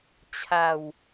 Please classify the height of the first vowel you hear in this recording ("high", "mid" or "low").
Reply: low